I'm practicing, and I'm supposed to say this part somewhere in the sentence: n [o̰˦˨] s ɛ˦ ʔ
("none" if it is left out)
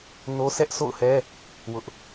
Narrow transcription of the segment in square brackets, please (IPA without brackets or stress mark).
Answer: o˦